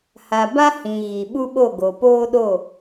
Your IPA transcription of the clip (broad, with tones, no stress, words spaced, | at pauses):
ha˨ ba˦hĩ˨ ɣi˨ ɓu˦ɓo˦˨ɡo˨ poː˦ɗo˦˨